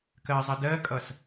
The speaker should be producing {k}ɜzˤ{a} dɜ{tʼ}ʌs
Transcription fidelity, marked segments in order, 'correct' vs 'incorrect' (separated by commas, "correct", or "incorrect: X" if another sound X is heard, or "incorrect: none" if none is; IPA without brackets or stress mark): correct, incorrect: ʌ, incorrect: kʼ